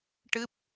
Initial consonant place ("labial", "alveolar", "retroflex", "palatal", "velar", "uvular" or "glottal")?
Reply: retroflex